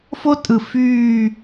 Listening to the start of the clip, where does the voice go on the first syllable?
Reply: high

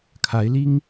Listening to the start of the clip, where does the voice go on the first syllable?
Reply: rising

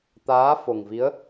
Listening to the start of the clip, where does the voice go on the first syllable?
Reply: rising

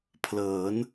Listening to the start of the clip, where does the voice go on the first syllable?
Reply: rising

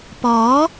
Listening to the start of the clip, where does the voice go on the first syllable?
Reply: rising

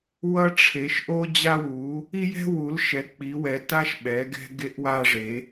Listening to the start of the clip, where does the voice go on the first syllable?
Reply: high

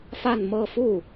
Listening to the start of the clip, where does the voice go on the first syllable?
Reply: falling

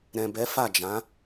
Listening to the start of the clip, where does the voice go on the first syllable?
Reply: low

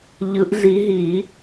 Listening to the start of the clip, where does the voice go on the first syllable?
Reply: rising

